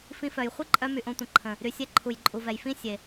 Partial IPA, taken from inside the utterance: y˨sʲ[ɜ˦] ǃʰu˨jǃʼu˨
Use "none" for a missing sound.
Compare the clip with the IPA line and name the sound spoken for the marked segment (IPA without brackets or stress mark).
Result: ɛ˦